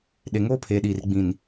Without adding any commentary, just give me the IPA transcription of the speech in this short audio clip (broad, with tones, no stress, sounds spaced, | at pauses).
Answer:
ɗ e˨ ŋ oː˦ pʰ eː˨ ɗ iː˨ r ɡ͡b ĩ˨ n